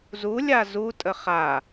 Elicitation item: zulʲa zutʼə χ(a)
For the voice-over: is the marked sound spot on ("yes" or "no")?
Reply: yes